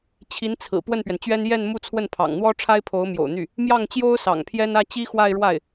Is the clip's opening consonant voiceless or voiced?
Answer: voiceless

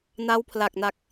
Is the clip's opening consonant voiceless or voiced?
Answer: voiced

